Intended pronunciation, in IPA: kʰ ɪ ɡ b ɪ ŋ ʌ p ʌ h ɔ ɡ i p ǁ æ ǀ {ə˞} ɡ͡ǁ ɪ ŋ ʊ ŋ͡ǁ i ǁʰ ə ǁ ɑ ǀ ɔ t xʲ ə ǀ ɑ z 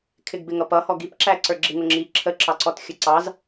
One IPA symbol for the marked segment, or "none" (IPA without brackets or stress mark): ə˞